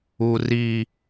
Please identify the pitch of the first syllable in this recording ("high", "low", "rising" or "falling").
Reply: high